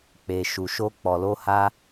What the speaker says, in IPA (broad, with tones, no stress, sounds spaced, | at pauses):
k͡p e˧ ʃ u˧ ʃ o˦ k͡p ɔ˧ l o˦ h a˦